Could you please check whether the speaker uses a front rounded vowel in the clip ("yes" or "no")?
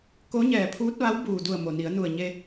no